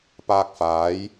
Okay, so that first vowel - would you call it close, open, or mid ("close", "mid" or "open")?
open